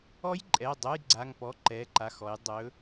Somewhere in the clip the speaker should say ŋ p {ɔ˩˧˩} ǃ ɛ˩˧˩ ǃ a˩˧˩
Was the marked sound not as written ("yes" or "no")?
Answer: no